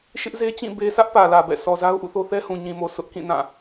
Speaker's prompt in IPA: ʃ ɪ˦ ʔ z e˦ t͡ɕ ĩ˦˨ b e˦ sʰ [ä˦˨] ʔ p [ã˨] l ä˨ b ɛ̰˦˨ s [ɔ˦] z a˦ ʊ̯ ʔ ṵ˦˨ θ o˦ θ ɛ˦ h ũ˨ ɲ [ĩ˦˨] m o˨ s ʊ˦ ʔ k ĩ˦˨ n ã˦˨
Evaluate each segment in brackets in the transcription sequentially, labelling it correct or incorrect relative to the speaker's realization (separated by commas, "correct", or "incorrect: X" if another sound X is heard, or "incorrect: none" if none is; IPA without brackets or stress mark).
incorrect: ä˦, incorrect: ä˨, incorrect: ɔ˨, incorrect: ĩ˨